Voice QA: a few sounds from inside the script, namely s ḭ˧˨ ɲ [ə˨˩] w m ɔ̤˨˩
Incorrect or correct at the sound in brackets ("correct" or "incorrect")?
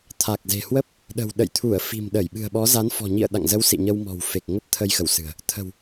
incorrect